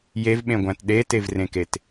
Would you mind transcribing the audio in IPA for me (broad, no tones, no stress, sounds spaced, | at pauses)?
j e v ɓ ẽ ɡʷ æ̃ t ɗ e t e v r ẽ k e t